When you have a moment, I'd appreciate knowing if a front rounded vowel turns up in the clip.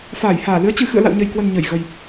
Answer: no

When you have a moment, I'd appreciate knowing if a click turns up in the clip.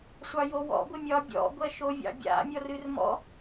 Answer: no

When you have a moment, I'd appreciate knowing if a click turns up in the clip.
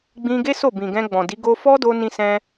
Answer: no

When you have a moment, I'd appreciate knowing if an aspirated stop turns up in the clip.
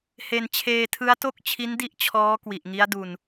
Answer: yes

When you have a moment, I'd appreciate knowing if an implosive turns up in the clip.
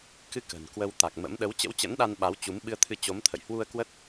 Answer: yes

